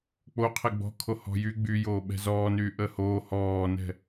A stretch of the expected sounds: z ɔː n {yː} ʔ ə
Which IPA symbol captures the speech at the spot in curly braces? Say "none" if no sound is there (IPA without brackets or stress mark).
yː